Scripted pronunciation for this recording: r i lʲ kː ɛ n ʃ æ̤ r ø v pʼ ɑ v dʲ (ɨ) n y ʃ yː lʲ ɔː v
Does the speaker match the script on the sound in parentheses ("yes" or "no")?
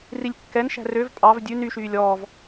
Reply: no